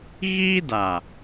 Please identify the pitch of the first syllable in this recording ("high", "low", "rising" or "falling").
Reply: high